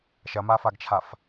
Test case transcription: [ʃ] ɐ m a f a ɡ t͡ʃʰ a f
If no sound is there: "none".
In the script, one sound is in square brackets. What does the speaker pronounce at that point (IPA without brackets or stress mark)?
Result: ʃ